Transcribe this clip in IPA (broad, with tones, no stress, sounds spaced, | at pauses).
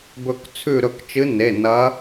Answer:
b ɵ˧˩ k t͡sʰ ʉ˧˩ ɾ ɵ˧˩ k t͡ʃ ɨ˨˦ n e˩˧˩ n ɐ˨˦